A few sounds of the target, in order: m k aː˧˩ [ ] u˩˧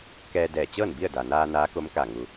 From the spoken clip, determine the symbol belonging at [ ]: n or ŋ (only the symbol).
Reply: ŋ